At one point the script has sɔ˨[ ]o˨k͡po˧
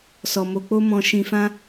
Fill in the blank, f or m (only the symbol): m